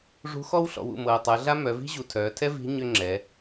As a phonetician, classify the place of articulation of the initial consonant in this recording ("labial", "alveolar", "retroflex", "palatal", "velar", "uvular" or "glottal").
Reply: retroflex